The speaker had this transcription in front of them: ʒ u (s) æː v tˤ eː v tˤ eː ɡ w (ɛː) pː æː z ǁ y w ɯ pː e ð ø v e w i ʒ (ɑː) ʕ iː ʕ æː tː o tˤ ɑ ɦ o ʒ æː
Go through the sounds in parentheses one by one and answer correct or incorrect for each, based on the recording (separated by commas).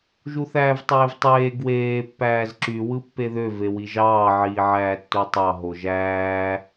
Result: incorrect, incorrect, correct